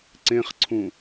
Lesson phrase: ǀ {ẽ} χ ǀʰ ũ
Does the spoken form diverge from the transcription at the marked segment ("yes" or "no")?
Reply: no